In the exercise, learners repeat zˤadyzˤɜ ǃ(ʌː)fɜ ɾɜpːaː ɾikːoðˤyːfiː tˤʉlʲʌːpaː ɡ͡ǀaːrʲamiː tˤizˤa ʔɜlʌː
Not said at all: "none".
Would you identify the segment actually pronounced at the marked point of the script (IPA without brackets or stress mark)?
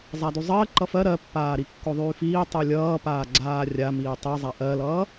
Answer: ʌ